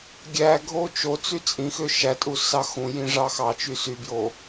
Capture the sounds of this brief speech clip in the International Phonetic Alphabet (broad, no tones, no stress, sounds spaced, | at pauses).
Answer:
ɡʲ æ ɡʱ o t͡ʃ o t͡s y t͡sʼ ĩ x ø ʃ æ tʼ u s ɑ x ũ j ĩ ʐ ɑ x ɑ t͡ʃ y s y b j o